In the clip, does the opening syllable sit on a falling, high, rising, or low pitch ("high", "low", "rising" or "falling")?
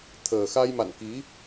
low